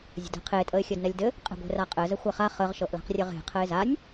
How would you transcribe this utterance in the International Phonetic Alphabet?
zʲə̤dɛ̤qʰe tʼəɪ̯xʲɘdnɛlʲdɘ | qʼɛ̤ɡʷe̤raqʼɘ zəxʷɛχa χəʁ ʃɤʔla̤qrʲɘʁe̤ qʰɘɪ̯zanʲ

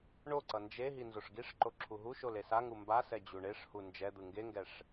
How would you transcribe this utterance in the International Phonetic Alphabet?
ɳoǀʌ nd͡ʒe ɦinzoʂɡiʂǃo ǁʰuɦuʃol esaŋu mbasɛ d͡ʑuɳeʂhu nd͡ʒɛd̪ɯ ŋɡeŋɡɛʂ

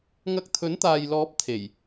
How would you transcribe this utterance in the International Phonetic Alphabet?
ŋɐ˧k̚t̪ʰɵ˨˥nt̪aː˨jlɔː˨˥p̚ t̪ʰe˨˩j

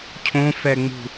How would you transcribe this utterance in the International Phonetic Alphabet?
cʰõfɛŋ͡mṳ

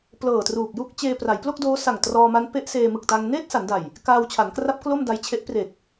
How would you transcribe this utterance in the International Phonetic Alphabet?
plɤː˨˩truː˨˩k̚ju˥˩k̚ t͡ɕeː˧pra˩˦jplo˥˩k̚doː˦˥ sa˨˩ŋtrɔː˧ma˦˥n pe˦˥ʔseː˧ mɯ˨˩k̚ta˧ŋ neː˥˩t̚sa˩˦nda˨˩j | kaː˧wt͡ɕʰa˩˦nkra˦˥p̚ klo˥˩mda˧j t͡ɕʰe˦˥ʔpre˨˩k̚

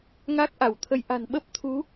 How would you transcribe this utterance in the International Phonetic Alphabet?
ŋa˦˥k̚ʔa˧˩wt̪ʰə˧j ʔa̤˨˩nɓə˦˥p̚ t̪ʰu˨˦

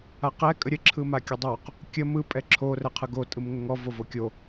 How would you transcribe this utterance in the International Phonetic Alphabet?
aqɛ kʼəɾʲə ǁʰɯmakʲədˤoq | kʲə mɯ pʼɛǁʰo rɛqʰɯɡo tʼɯmŋəŋɔ vovokʲo

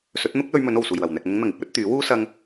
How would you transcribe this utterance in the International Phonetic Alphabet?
sɵ˨˥t̚n̪ʊ˥k̚lɵ˧ɥmɵ˨˧n o˨˩wsuː˨˩jwɐ˨˩wn̪ɛː˨k̚ mʊ˨˧ŋn̪ɐ˨˩ŋɪ˥k̚wɵ˨˥t̚ t̪yː˨˥wuː˥ sɐ˧ŋ

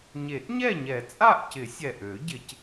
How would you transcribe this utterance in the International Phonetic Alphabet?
ɲe˨˩˦ʔɲɛ˥˨ɲɛ˨˩˦ t͡sʼa˥˨ʔcɪ˨˩˦sʲɛ˨˩ʔø˨˩˦ ɟɪ˨˩˦c

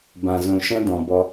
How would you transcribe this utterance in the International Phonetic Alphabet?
bã˨zũ˨ ʃɛ̃˦dɔ̃˨bɔ˧

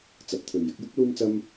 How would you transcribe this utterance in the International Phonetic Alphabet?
t͡sɐ˨p̚t̪ʰɵ˨ɥ jɪ˨˥k̚jʊ˥k̚ luː˥mt͡sɐ˥m

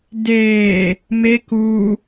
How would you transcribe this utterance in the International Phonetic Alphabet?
deː | mek u

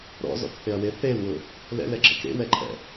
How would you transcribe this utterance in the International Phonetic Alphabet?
ɾɔ̰zɔ̰kθɪɐ̯we θelwʊ | lɛ̰lɛǁɪk ɾḛwɛǃʰɛ̰

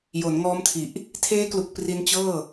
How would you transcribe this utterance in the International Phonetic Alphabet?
jo˩˦nŋɔː˦˥mtʰi˨˩ʔ | tʰeː˦˥klu˨˩k̚ pri˦˥nt͡ɕɤː˥˩

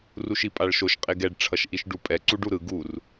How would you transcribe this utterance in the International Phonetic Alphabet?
ruʃipʼaɭʃoʃ qʼeɡɛɖ ʈ͡ʂʰʌʃʔiʃɖupʼɛ ǀuɖuɾɯ ɡur

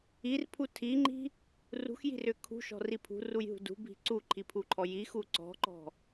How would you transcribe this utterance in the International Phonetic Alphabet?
irpʰu tʰiŋ͡ǃi̤ | rṳxji̤rʏ kʰṳʃɔ̤ri pʰṳrujɦṳ dṳbʱi̤ ǀuǃʰipʰuǃʰɔ jixu ǀɔ̤ǃɔ̤

